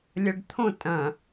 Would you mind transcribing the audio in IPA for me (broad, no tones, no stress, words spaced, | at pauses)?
lʲɐɖt̪ʰõ tʼɐ̃